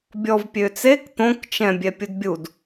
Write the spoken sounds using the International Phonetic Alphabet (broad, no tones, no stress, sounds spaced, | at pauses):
bʲ ɔ v pʲ ø t͡s e k t̪ õ k t͡ʃ ɛ̃ bʲ ɛ pʲ u d bʲ u d